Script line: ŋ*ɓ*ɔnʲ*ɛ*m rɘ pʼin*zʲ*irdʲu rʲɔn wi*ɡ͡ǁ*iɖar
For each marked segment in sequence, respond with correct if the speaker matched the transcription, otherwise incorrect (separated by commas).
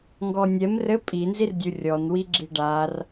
incorrect, correct, incorrect, correct